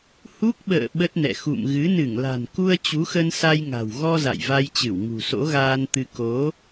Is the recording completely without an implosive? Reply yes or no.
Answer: no